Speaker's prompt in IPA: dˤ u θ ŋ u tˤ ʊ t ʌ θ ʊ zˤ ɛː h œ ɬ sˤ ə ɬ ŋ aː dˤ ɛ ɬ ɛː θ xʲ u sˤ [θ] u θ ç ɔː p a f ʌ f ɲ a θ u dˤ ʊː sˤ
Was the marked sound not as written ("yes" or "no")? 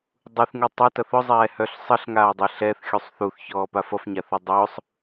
no